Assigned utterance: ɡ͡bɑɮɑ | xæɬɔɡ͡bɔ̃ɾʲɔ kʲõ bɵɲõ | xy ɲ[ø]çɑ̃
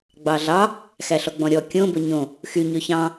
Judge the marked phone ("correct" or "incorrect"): correct